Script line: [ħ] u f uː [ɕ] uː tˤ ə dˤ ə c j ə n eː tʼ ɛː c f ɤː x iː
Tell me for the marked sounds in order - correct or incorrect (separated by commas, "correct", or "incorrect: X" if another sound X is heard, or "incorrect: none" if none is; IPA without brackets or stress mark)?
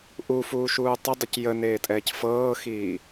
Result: incorrect: ʔ, incorrect: ʃ